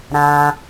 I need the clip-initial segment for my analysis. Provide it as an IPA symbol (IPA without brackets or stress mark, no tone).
ɾ